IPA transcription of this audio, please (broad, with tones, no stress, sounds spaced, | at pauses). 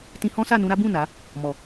t ĩ˧ h ɔ̃˦ s a˦˨ n ũ˧ ɾ a˦ b ũ˦˨ n a˨˦ | m ɔ˨